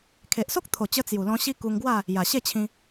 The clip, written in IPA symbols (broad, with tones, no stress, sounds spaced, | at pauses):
kʰ e˨ ʔ s o˦ k̚ t̪ʰ o˨˩ t͡ɕ ə˧ t͡s j u˨˩ l ɔ̃˧ ɕ i˦ k u˧ ŋ ɡ w a˥˧ | j a˨˩ ɕ e˥˧ t͡ɕʰ ĩ˧